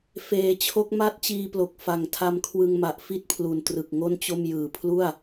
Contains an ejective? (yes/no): no